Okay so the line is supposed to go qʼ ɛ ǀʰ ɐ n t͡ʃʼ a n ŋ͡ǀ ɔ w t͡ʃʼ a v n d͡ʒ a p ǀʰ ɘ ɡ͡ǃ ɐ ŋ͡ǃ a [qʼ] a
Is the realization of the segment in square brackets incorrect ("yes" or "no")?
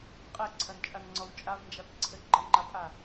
yes